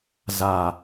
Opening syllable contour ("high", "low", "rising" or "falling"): low